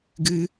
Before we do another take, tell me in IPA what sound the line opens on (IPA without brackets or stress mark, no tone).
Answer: ɡ